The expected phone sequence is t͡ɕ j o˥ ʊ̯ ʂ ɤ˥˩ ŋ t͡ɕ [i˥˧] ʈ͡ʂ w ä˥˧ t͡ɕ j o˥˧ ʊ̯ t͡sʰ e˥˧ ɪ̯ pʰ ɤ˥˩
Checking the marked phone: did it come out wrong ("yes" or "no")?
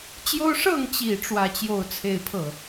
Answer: yes